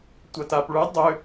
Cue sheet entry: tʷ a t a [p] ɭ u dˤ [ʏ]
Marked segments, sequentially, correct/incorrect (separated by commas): correct, correct